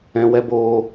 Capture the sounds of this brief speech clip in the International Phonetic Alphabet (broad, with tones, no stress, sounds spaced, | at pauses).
ɛ̃˧ w ɛ˦ b oː˧